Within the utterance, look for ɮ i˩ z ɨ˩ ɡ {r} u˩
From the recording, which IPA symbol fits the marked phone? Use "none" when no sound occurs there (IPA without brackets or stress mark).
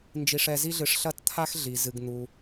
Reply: n̪